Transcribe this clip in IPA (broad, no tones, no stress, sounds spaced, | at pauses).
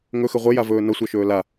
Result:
ŋ ɵ x ɘ ʁʷ ɘ j a v ɵː n ʌ sʷ œ ʃ ɵː l a